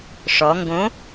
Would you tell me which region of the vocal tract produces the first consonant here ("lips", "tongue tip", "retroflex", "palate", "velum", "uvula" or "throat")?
retroflex